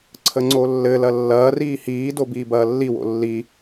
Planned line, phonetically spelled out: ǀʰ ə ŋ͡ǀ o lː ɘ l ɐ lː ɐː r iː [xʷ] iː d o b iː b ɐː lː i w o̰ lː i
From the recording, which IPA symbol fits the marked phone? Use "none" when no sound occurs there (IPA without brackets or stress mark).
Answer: h